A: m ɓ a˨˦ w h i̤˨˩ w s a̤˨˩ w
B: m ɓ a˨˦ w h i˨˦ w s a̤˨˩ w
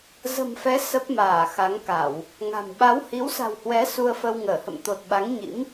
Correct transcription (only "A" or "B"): B